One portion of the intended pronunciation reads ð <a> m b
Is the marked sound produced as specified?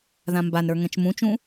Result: no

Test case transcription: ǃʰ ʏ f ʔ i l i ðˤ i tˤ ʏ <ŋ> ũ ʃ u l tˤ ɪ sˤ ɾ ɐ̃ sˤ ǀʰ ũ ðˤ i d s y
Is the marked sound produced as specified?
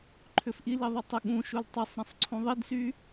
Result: no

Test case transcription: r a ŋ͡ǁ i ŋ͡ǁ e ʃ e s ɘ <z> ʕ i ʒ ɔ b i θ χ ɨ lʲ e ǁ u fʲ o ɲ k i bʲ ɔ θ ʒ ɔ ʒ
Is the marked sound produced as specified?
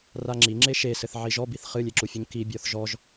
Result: no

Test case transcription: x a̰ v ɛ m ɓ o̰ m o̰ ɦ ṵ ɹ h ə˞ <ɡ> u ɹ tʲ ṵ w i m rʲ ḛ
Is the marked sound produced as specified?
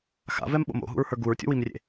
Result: yes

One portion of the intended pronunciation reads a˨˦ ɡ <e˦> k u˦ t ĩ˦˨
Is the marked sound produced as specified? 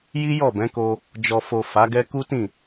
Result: no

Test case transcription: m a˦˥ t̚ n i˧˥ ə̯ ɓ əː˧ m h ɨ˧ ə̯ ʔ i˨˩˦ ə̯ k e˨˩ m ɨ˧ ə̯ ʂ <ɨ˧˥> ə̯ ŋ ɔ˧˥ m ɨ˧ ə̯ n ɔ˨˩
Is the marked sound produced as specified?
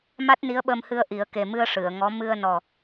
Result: no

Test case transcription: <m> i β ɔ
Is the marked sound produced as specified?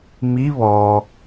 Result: yes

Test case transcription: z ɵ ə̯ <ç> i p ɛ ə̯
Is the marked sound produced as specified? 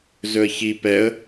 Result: yes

